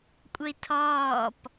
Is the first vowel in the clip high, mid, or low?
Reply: mid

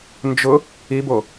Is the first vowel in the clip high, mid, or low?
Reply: high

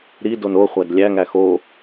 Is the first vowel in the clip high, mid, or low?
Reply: high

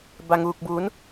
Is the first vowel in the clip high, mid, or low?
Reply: low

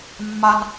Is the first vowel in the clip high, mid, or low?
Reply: low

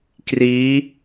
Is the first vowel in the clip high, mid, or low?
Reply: high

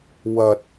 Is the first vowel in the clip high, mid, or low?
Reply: low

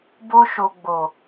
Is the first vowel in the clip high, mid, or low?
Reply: mid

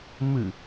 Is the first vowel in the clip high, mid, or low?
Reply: high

